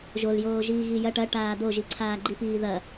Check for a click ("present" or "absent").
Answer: present